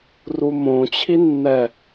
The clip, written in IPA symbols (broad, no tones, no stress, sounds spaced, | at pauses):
r u m õ t͡ɕʰ i nː ɛ